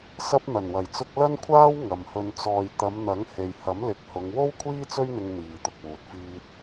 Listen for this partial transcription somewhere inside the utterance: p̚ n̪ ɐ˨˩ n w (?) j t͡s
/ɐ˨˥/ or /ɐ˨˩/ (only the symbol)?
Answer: ɐ˨˩